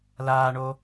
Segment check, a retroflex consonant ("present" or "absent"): present